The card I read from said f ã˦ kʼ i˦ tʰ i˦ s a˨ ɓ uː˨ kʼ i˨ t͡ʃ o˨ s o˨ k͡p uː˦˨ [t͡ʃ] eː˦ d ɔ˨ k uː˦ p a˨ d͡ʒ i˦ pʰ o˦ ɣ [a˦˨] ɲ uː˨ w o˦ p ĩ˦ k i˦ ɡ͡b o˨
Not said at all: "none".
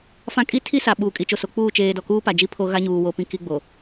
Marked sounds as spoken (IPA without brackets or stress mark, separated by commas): t͡ʃ, a˦